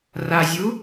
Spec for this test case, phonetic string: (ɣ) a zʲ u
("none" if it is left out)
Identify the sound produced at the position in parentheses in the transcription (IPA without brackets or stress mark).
r